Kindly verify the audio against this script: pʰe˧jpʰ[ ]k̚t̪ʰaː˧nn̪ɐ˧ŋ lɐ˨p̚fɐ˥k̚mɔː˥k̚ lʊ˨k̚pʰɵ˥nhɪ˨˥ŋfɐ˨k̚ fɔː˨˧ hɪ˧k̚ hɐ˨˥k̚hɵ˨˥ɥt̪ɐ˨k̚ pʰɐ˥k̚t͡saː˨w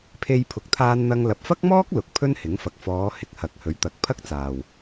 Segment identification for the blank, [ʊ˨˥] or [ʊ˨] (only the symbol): ʊ˨